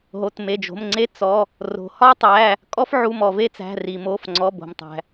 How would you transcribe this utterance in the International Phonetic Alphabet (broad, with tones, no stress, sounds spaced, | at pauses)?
ɦ o˩˧˩ t m e˩˧˩ d͡ʒ o̤˩˧˩ m ŋ͡ǀ e˥ t͡s ɔ˩˧˩ | r o̤˩ h ɒ˥ tˤ æ˩˧˩ | kʼ ɔ˥ f ʕ u˩˧˩ m ɔ˩ v e˥ t͡s æ̤˩˧˩ r i˩ m o˩˧˩ f ŋ͡ǀ ɔ˩˧˩ b o̤˩ m tˤ æ̤˩